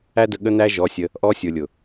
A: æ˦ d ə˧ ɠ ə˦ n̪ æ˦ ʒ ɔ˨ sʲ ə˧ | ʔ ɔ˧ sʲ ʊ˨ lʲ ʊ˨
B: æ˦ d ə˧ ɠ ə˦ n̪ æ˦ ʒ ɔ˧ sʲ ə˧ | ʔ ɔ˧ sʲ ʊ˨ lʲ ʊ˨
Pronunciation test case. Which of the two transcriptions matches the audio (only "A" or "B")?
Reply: B